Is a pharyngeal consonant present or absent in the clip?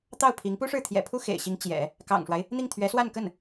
absent